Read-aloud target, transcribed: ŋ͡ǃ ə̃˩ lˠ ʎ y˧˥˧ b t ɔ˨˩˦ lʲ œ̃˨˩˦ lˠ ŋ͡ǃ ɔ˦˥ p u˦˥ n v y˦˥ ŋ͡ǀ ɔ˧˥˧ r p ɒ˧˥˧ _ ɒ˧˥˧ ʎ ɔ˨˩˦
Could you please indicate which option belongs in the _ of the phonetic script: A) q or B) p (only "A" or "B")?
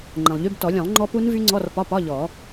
B